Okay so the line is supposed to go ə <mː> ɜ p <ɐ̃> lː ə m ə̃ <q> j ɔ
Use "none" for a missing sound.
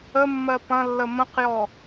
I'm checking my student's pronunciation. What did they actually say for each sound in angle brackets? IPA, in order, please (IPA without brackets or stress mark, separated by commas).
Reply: mː, ɐ̃, q